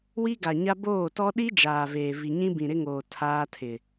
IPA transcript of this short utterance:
wi˦ ɡa˨ɲa˦ boː˦˨tɔ˦ ɗi˦ d͡ʒaː˨veː˨ vi˨ɲĩ˦bĩ˨ ɾɪ˦ŋoː˨ tʰaː˦tʰɪ˨

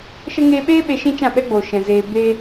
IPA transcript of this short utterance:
ʃə˦ ŋeː˧ɓeː˦ ɓe˧ʃĩ˦t͡ʃã˦˨ɓɛ˦ ɡ͡boː˨ ʃɛ̃˨ zeː˧ be˧

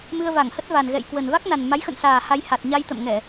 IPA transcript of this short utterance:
mɨ˧ə̯va˧˩ŋhə˦˥t̚va˨˩n ɣɛ̰˧˨jkwə˨˩n va˦˥k̚na˨˩n ma˨˦jxə̰˧˨nsaː˨˩ ha˧jha˨˩t̚ ɲa˧jt̪ə̰˧˨mŋɛ˧˩˨

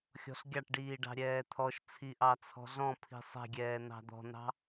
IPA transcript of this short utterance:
xʲɔ̤ɬɡʲɑʈɖiː ɖɑ̤ɾʲɛːt̪ʰɔʃt͡sʰi ʔɑt͡sʰɔ̤ɮɔ̃pʰi̤ sˤɛ̤ɡʲɛː nɑ̤d̪ɔ̤n̪ɑ̤

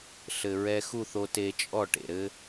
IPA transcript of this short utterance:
ɬɘ˨ɹɛ˧ xu˦˨θo˧ te˧t͡ʃʼɔ˦˨ʈḛ˨ɾɘ˦

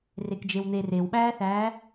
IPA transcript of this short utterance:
rekd͡ʒewn̪er ewɓæːθæː

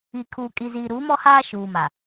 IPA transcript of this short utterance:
i˨kʰuː˨ kʼi˨ziː˨ɾuː˨˦mɔ˦ haː˦ʃuː˨ma˨

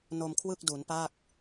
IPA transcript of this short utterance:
no˧mkʰwɯ˥˩k̚du˩˦npa˥˩k̚

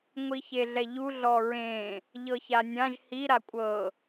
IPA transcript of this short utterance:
ŋʷiçeɮɛʎu ɮɔɹẽ | ʎɤçanʲãʒ hi ɾakʷʼɤ

